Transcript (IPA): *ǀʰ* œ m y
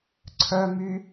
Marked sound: correct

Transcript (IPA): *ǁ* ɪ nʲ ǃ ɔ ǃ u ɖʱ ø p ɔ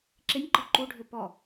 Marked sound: correct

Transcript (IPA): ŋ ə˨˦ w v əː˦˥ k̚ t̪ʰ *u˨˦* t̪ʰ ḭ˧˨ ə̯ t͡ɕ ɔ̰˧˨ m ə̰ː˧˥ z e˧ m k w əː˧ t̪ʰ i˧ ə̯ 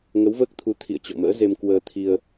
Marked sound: correct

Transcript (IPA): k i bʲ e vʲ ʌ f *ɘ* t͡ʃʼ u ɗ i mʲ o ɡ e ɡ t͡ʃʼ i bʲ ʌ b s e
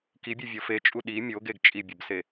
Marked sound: incorrect: e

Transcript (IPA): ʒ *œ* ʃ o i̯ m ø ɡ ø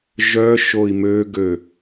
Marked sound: correct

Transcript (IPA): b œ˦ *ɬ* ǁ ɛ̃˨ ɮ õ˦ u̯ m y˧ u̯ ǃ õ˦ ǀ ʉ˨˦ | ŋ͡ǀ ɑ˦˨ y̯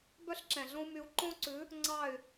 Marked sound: correct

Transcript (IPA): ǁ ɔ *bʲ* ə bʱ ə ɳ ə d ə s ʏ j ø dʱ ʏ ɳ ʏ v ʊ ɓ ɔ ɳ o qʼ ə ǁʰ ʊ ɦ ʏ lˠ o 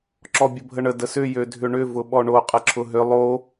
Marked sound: correct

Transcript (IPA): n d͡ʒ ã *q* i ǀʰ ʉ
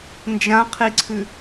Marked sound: incorrect: qʰ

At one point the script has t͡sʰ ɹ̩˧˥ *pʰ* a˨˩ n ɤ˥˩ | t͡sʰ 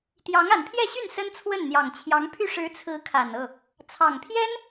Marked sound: incorrect: kʰ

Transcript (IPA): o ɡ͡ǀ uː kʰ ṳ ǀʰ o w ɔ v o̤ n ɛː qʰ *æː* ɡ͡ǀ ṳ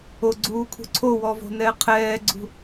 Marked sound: incorrect: ɛː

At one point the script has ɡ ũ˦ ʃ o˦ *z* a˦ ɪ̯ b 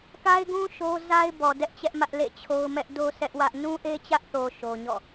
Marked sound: correct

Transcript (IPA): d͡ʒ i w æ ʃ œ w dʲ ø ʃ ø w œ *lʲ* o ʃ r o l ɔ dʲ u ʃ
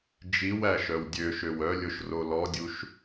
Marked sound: correct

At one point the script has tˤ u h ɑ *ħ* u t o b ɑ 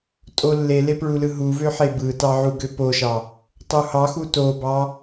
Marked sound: incorrect: x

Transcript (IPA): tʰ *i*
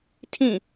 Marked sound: incorrect: ĩ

